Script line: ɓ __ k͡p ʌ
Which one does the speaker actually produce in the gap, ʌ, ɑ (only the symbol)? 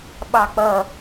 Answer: ɑ